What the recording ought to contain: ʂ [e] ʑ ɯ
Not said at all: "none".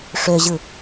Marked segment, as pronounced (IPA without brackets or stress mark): ø